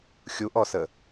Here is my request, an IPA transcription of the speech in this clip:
xʲ u ʔ ɔ s ə

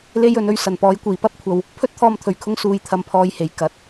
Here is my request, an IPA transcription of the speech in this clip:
l e˧ j ɵ˨ n ɵ˧ ɥ s ɐ˨˩ n p ɔː˨˧ j kʷ iː˨˩ p ɐ˥ p̚ kʷʰ ɐ˨ w | pʰ ɵ˥ t̚ t̪ʰ ɔː˧ m t̪ʰ ɵ˨˩ ɥ kʰ ʊ˧ ŋ s uː˨ j t̪ʰ ɐ˨ m pʰ ɔː˨ j h e˨˩ j k ɐ˨˥ t̚

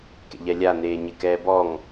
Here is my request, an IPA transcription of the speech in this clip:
k ḛ ʎ ɛ lʲ a n eː ɲ ɪ k ɛː b ɔ ŋ

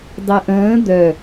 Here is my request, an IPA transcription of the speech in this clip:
dˤ e ʔ ə̃ː d̪ œ

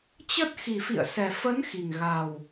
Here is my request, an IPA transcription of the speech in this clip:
t͡ɕ ə˦˥ t̚ x i˨˩ f ḭ˧˨ ə̯ s ɛ˨˩ f ə˨˦ n x i˨˩ ŋ ɣ a˨˩ w

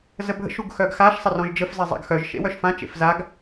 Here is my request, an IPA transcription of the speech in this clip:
z ə bʱ ə̰ ʃ u ɡ x œ ɡ x a ʃ sˤ ə r ɔ̃ ʒ d͡ʒ ə f z e zˤ a̰ ɡ x œ ʒ ʃ ḛ w œ ʃ f ã t͡ʃ ḛ f z a ɡ

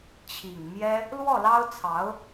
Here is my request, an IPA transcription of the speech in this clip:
t͡ɕʰ i˨˩ ŋ m j ɛ˥ | l w ɔ˥˩ l ɑ˥ ʊ̯ t͡sʰ ɑ˧˥ ʊ̯

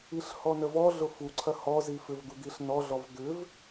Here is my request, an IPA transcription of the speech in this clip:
i ɬ h ɔ n ə v ɔ ɮ ʊ f u ǀʰ ɐ h ɔ z i f ʏ v d̪ u d̪ i ɬ n ɔ ɮ ɔ v d̪ ʏ v

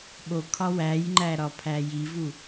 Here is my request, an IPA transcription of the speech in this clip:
ɓ o kʰ ɒ w æ j ŋ͡ǃ æ ɾ ɒ pʰ æ j i v u

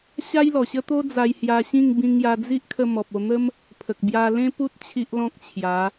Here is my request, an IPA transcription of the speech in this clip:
ɕ a˦ j l ɔ˨˩ ɕ ə˦ t̪ o˦ d͡z a˧ j h j a˧ ɕ ĩ˥˧ ŋ b ĩ˧ ŋ j a˧ d͡z i˦ ʔ kʰ ə˧ m ɔ˨ p̚ o˧ n̪ ə˦ m | pʰ ə˨ k̚ b j a˧ l ẽ˦ p u˦ t̚ t͡ɕʰ i˦ ʔ l ɔ̃˦ k̚ t͡ɕʰ j a˨˦

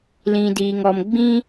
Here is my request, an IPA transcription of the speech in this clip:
l ĩ˨ d iː˨ ŋ ɔ˨ m ɡ͡b ĩ˧

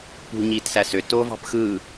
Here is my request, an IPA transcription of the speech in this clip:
p ṳ ɲ iː t s æ s ø t oː v ɑ̤ p x ɯː

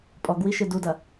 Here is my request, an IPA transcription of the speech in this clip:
pʼ ɔ ɡ w i ʃ ɨ d u d ɐ

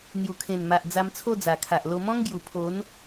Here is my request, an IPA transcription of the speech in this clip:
n̪ j u˨˩ kʰ ẽ˨˩ n m a˨ ʔ d͡z a˧ m t͡sʰ o˥˧ d͡z a˨˩ kʰ a˨ ʔ l o˧ m ɔ̃˦ ŋ ɡ j u˨˩ pʰ o˨˦ n

